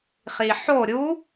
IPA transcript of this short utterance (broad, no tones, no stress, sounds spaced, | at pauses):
χ i ħ o ɾʲ u